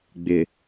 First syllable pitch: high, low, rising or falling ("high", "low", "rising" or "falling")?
low